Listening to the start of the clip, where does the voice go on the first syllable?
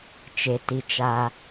low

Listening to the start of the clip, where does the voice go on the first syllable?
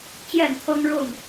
falling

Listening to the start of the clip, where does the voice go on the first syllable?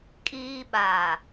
high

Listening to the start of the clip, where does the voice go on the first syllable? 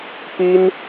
high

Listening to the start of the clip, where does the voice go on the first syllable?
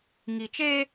low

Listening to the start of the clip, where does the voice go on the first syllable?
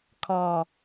low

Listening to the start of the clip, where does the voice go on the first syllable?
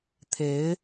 rising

